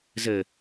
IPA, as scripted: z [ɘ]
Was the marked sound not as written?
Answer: no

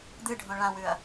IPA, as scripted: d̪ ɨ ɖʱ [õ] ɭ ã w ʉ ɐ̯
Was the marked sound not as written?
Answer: no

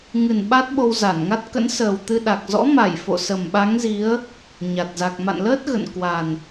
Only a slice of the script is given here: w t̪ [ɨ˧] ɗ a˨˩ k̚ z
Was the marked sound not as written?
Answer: no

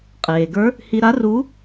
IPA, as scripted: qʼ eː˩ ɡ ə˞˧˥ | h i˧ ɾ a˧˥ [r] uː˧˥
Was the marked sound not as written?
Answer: no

